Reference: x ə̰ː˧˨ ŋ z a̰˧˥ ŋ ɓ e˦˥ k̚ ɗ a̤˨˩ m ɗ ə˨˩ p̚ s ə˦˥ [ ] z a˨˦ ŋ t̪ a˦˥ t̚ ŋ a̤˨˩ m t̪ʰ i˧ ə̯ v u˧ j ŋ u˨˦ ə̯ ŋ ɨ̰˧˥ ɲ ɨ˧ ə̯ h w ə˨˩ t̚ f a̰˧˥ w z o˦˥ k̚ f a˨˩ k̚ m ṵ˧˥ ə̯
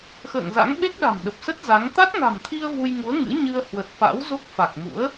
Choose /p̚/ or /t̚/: t̚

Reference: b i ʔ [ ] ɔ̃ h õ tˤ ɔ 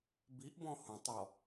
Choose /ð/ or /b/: b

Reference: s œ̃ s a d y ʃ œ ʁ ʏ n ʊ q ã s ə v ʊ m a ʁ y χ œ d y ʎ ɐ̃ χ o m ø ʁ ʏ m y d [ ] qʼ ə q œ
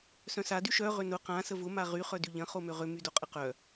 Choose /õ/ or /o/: o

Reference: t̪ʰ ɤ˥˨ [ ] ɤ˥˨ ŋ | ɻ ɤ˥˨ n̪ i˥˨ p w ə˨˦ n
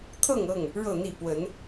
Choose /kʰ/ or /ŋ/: ŋ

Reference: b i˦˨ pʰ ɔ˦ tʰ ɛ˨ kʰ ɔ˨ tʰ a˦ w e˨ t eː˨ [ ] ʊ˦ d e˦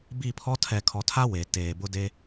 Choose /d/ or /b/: b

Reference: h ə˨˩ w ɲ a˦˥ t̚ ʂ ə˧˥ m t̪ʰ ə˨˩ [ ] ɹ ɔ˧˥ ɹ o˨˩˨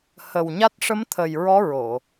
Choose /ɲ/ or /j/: j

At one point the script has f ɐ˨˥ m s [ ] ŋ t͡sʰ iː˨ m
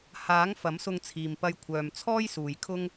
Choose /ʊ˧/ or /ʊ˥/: ʊ˧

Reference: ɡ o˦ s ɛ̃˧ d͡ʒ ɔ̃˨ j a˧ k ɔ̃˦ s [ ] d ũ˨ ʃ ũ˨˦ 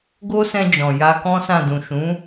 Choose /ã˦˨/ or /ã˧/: ã˦˨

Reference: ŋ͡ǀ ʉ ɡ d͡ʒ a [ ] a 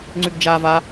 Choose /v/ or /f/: v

